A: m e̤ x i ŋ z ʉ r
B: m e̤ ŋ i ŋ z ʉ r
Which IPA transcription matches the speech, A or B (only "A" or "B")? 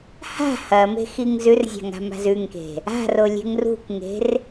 A